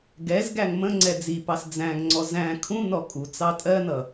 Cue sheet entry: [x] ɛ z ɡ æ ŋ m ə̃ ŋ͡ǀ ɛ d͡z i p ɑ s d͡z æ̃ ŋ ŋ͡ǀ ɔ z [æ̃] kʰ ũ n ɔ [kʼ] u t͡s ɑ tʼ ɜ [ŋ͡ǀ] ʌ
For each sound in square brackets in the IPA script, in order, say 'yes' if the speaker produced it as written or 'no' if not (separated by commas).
no, yes, yes, no